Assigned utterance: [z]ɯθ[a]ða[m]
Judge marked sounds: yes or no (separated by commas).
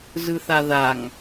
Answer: yes, yes, no